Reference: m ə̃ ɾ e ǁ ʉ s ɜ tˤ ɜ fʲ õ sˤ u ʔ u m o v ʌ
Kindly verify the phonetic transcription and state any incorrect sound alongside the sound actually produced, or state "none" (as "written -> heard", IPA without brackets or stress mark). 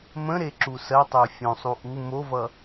ʉ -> u